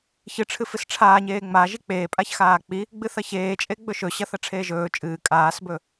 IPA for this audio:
ç ɨ ʈ͡ʂʰ ɨ f ɨ s ʈ͡ʂʰ aː ɲ eː ŋ͡m a ʒ i k͡p eː pʼ a ç x aː k͡p i | ɡ͡b ɨ θ ɐ ç eː t͡ʃʼ e ɡ͡b ɵ ʃ ɵ ɕ ɐ θ ɐ ʈ͡ʂʰ eː ʒ ɵː t͡ʃʼ ɨː kʼ aː s b ɵ

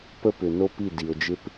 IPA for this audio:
p ə˦ p ʏ˨ n o˦ p i˦˨ d i˨ o̯ d͡ʒ ɪ˦ p

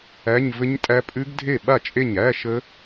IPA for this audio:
æ˧˥˧ ɲ v ɘ˦˥ ɲ tʼ æ˦˥ pʼ ʉ˦˥ ɡ dʱ e˥˩ ɓ a˥˩ t͡ʃʼ e˥˩ ɲ æ˧˥˧ ʃ ə˦˥

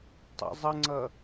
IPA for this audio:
tˤ ə̰ zˤ ə ŋ͡ǀ ʌ

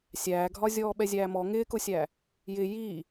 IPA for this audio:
sʲ æː ɡʱ ɒ zʲ ɔː ɓ ɛ zʲ æː m ɔ ŋ ɪː k ʊ sʲ æ | j ɪ j i

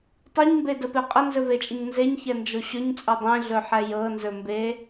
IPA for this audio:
tˤ e ɲ m b e d ə p e qʼ ə n z ɵ v e t͡ʃʼ ə ɲ n z e ɲ ç ɛ n d͡ʒ o ɕ ɵ ɲ t͡sʼ o dˤ ẽ ɮ ɵ ħ ɛ j ɤ n z ɵ m b e

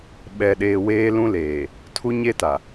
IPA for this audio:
ɓ ɛ˨ ɗ eː˨ w eː˦ l ũ˦ l eː˨ | tʰ u˦ ɲ e˦ t a˨

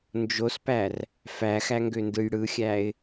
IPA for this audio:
n d͡ʒ o s p æ r | f æ x æ ŋ ɡ ø n d ɯ j ɽ ɯ xʲ æ ɪ̯

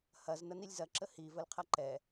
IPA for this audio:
h ɐ z n ɐ n i lʲ z ɐ ǁ ə h i v ə l qʰ ɐ ǃ ɛ

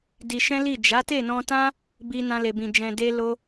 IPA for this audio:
d i˧ ʃ ɛ̃˦ l i˦˨ d͡ʒ a˨˦ t e˦˨ n ɔ̃˧ t ã˦ | b i˧ n ã˧ l e˨ b ĩ˨ d͡ʒ ɛ̃˨ d e˧ l o˧

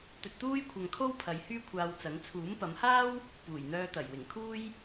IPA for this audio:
t̪ ɵ˧ t̚ t̪ uː˥ j kʷʰ ɐ˧ ŋ kʰ o˥ w pʰ ɐ˨˧ j h yː˥ kʷʰ aː˧ w t͡s ɐ˨˥ ŋ t͡sʰ uː˨˥ m p ɐ˨˧ m h aː˥ w | p uː˨˩ j n̪ œː˧ t̪ ɐ˨˩ j w ɪ˨˩ ŋ kʰ uː˥ j

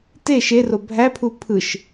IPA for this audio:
t e ʃ e r o bʱ æ pʰ u pʰ ɯ ʃ

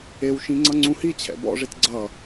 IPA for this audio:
e w ʃ ĩ ŋ͡ǀ ʌ ŋ͡ǀ ũ h i t͡ɕʰ ɛ̰ b ɔ̰ ʐ e t ɡ͡ǀ ʌ

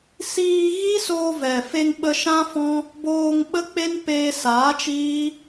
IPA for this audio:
s iː˧ ɣ i˦ s oː˧ v ɛ˨ f e˧ ŋ ɓ ə˧ ʃ ã˦ f ɔ̃˦ | b oː˧ ŋ ɓ ə˦ k͡p e˦ n p eː˧ s aː˨˦ t͡ʃ iː˦

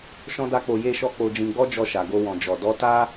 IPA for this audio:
ʃ ɔ̃˦ d a˦ k͡p o˧ j e˧ ʃ ɔ˧ k͡p o˧ d͡ʒ ĩ˧ ɡ͡b ɔ˦ d͡ʒ ɔ˧ ʃ a˨ ɡ o˧ w ɔ̃˨ d͡ʒ ɔ˨ d ɔ˨˦ t a˦

